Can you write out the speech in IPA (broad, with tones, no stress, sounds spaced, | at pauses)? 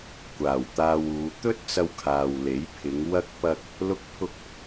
kʷ aː˨˩ w t̪ aː˧ w uː˨˧ t̪ ɵ˥ t̚ t͡s ɐ˧ w kʰ aː˨ w l e˨˥ j pʰ ɪ˨˧ ŋ w ɐ˥ k̚ p ɐ˥ k̚ | l ʊ˥ k̚ pʰ ʊ˥ k̚